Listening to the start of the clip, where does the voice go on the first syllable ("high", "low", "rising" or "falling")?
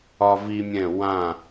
high